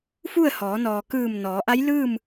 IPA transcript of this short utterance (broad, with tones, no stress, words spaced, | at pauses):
fu˥˨ə̯hɔː˩˧ nɔː˩kɯː˧˩m nɔː˩˧ʔa˧˥j lɯː˥˨m